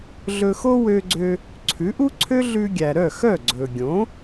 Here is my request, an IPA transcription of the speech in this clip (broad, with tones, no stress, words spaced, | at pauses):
ɮɵ˧xo˥ wø˧ɡ͡ǀø˧ | ǀʰʉ˩˥ʔu˥ǀʰø˥ ɮʉ˧ ɡʲæ˩ɾœ˥˩xœ˥˩ ɡ͡ǀɵ˩ɡʲõ˩˥